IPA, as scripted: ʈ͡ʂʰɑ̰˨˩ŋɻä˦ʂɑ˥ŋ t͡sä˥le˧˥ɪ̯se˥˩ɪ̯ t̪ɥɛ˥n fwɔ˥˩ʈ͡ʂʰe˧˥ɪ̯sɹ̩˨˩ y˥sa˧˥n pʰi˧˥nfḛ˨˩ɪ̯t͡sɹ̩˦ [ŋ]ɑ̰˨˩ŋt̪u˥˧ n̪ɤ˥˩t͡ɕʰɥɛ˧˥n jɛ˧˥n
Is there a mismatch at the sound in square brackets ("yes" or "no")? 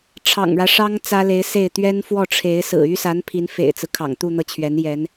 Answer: yes